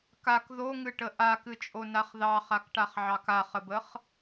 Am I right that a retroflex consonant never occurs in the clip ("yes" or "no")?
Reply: no